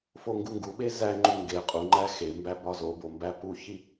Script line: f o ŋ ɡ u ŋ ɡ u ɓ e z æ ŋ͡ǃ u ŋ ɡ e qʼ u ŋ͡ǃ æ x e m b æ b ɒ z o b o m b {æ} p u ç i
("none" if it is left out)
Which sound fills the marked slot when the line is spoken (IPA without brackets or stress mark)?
æ